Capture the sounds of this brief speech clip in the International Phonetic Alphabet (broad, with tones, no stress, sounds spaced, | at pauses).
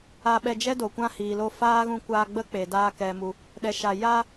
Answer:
a˧ ɓ ɛ˧ d͡ʒ ɛ˦ d o˨ kʷ ã˦ h iː˨ l o˧ f aː˦ ɣ ũ˧ kʷ aː˧ ɡ͡b ə˦ k͡p e˨ d aː˧ k ɛ˨ m u˨ | ɗ ɛ˧ ʃ a˧ j a˧